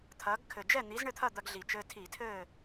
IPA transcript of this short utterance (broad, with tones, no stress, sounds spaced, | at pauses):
t̪ʰ ɐː˨˥ ɡ kʰ ɘ˨˩ d͡ʒ ɛ˥˨ n̪ i˨˥ z ɳ ɘ˥˨ t̪ʰ ɐ˥˨ d̪ ɐ˦ ɡ ɮ i˨˩ t͡ʃ ɘː˦ tʰ i˧˩˧ tʰ ɘː˥˨